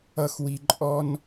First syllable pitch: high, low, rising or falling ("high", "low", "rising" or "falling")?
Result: falling